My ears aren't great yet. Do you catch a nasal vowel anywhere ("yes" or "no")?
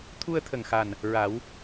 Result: no